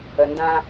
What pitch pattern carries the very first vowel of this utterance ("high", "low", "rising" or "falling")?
low